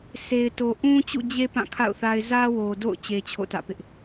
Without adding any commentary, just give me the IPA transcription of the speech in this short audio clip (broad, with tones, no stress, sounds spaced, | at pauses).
sʰ e˨ ɪ̯ t o˨ ʔ ũ˦ t͡ɕ ṵ˦˨ d͡ʑ e˦ p ã˦˨ kʰ a̰˦˨ ʊ̯ θ a˦ ɪ̯ z ä˦ w o˨ d o̰˦˨ ʊ̯ t͡ɕ e˦ t͡ɕʰ o̰˦˨ t ä̰˦˨ p ɪ˦ ʔ